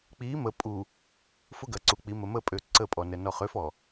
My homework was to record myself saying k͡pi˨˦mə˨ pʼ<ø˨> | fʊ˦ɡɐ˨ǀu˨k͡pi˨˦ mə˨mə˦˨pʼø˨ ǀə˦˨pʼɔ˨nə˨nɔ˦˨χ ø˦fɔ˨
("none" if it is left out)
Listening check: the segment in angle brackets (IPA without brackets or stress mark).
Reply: u˨